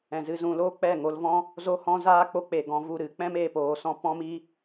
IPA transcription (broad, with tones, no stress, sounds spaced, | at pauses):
ɛ̃˨ z ɨ˧ z ũ˨ l oː˦ k͡p ɛ˦˨ ŋ o˧ l v ɔ̃˦ | z o˦ h ɔ̃˦ z aː˦ k͡p o˧ k͡p e˨ ɡ ɔ̃˧ v u˦˨ ɾ ɨ˦ k͡p ɛ̃˦ m eː˨ p oː˨ s ɔ̃˧ p ɔ̃˦ m i˦